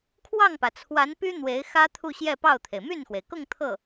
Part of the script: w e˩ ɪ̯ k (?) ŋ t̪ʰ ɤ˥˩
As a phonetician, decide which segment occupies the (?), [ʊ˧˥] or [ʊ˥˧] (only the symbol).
ʊ˥˧